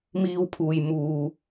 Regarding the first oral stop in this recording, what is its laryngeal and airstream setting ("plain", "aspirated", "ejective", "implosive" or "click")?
aspirated